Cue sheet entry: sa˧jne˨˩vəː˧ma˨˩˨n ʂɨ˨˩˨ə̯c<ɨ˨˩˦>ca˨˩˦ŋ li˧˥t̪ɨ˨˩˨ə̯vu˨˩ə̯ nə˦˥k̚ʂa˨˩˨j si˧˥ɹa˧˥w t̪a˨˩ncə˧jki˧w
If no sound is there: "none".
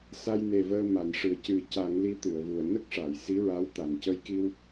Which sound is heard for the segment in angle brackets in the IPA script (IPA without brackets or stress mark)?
ɨ˨˩˦